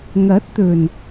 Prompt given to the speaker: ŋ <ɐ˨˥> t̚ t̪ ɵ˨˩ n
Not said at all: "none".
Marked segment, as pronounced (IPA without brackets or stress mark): ɐ˨˥